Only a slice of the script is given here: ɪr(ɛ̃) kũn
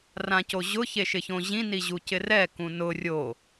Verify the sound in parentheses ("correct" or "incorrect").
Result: incorrect